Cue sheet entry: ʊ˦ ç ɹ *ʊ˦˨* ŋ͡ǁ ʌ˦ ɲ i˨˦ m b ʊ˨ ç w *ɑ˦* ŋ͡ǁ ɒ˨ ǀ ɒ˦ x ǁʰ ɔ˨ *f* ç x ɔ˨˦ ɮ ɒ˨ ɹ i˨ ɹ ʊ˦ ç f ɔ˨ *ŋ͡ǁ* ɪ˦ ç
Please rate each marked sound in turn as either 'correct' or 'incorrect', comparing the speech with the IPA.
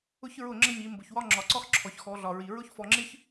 correct, incorrect: ɒ˦, incorrect: none, correct

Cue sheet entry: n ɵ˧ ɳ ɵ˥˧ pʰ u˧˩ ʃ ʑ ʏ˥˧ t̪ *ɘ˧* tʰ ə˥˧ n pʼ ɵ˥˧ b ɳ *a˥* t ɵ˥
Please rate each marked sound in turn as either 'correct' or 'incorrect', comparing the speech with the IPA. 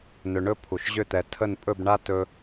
incorrect: ɛ˧, correct

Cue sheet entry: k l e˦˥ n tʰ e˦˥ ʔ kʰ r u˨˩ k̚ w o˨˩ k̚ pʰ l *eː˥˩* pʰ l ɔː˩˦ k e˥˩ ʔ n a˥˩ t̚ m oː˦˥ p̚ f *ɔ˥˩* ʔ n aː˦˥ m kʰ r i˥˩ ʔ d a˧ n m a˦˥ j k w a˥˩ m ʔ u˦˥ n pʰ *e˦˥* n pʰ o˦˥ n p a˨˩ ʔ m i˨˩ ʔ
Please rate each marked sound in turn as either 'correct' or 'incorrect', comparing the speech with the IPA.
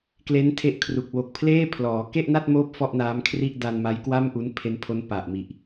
correct, correct, correct

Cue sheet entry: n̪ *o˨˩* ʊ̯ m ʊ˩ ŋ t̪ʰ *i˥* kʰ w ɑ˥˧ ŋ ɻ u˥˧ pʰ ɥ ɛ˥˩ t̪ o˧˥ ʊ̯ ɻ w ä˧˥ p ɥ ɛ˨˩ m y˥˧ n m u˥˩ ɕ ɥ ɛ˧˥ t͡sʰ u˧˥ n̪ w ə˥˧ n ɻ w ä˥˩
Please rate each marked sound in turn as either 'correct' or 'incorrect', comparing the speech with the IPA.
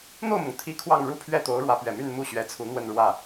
incorrect: o˥˩, correct

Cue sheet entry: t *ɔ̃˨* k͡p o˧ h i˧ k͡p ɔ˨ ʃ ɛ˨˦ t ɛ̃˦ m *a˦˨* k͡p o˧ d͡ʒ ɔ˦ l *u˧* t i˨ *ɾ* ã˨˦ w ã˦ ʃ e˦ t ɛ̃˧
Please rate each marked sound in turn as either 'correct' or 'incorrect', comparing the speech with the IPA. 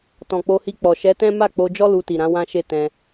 correct, correct, correct, correct

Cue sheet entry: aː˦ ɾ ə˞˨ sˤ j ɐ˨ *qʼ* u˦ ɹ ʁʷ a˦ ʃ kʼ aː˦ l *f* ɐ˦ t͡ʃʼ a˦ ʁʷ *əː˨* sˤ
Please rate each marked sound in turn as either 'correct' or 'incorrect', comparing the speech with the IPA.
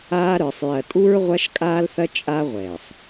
incorrect: tʼ, incorrect: θ, incorrect: ɛː˨

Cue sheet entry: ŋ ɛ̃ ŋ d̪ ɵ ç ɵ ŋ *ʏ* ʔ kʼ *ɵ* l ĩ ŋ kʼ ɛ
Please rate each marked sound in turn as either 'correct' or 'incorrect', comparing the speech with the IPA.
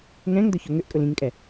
correct, correct

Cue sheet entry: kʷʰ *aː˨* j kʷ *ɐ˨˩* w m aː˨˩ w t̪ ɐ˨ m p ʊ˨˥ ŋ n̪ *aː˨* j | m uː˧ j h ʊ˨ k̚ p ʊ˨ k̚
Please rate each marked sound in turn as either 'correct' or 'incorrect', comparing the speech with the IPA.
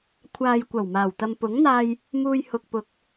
correct, correct, incorrect: aː˧

